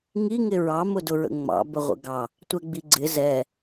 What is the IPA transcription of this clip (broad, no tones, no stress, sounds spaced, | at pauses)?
ŋ i ŋ ɪ ɹ ɑ m ʊ d ʊ ɹ ə̰ ŋ͡m ɑ̰ b ə ʁʷ ə̰ ɡ ɑ | tʷ ɛ ɡ͡b i ɡ͡ǀ ɪ z ɛ